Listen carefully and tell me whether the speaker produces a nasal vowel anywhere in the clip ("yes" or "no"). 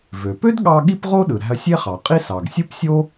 no